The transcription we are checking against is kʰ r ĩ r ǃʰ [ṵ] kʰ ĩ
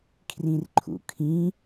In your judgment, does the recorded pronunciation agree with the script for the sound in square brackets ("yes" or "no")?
yes